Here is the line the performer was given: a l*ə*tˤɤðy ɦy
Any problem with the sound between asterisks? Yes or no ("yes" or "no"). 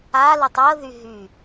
no